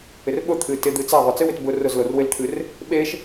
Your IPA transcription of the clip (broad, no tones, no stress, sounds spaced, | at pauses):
ɪ r ɓ ʊ t̪ʰ ɨ t ɪ d̪ ɨ t͡s a ðˤ ʊ t͡s ɨ w ɪ t b ʊ r ʊ z l o r w ɪ l t̪ʰ ɨ r | ɓ e ʃ